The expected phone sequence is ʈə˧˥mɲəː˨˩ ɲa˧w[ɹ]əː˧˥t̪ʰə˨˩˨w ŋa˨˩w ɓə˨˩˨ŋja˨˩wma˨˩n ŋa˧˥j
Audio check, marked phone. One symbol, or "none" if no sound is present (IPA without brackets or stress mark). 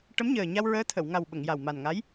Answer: ɹ